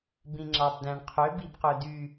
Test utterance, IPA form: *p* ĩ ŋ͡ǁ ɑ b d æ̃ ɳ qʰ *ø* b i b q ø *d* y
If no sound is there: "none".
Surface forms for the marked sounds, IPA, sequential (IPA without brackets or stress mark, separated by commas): b, ø, d